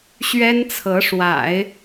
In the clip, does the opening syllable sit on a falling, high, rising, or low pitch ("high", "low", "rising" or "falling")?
high